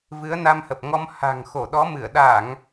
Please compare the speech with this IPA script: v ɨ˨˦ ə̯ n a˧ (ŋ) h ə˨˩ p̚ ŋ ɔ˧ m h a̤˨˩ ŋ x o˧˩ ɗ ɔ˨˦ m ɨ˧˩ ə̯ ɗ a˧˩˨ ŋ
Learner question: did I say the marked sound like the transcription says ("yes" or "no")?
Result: no